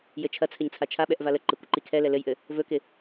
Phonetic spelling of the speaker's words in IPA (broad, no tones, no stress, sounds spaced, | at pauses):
j ɘ t͡ʃʰ ɐ t͡sʰ ɘ ɲ t͡sʰ a t͡ʃʰ a ɓ ɛ ʔ v a l ə ǃ ɪ kʷ ɪ ǃ i kʰ ɛ l ɛ l ɘ j ʔ ɘ | v ɵ k ɪ